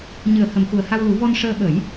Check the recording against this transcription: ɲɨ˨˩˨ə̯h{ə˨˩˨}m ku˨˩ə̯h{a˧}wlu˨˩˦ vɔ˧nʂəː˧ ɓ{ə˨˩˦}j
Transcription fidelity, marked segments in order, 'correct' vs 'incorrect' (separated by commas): correct, correct, correct